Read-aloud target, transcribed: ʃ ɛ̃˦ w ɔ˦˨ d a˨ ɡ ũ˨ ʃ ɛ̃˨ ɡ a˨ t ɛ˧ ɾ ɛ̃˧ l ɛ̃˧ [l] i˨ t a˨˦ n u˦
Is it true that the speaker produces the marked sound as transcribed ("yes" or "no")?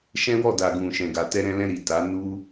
no